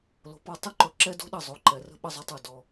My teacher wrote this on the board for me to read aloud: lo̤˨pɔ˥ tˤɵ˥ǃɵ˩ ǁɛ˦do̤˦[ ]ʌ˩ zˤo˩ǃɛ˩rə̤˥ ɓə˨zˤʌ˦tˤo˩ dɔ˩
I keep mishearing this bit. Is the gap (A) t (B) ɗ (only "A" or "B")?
B